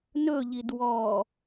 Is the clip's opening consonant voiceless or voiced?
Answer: voiced